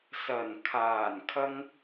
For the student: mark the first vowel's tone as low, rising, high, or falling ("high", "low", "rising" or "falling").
low